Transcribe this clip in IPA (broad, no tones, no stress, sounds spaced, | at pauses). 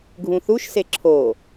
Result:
ɡʱ ũ θ u ʃ s e ǁʰ o